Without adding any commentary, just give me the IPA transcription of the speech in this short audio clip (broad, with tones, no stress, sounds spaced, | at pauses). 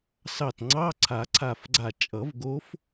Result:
s ɑ˧˩ t ŋ͡ǀ ɑ˧˥˧ ǀʰ a˨˩˦ ǀʰ a˧˩ f ɡ͡ǀ a˧˩ t͡ʃʼ ʌ˨˩˦ v ɡ o˧˥ f